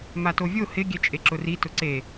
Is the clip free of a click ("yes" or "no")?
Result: no